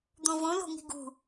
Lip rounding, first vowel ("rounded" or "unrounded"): rounded